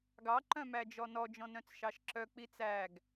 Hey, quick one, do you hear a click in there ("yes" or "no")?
yes